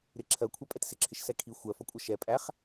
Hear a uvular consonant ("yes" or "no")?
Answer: yes